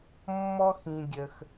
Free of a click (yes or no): yes